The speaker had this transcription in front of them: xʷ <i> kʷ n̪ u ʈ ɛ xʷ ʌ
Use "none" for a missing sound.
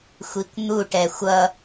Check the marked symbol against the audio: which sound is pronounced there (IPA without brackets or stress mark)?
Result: i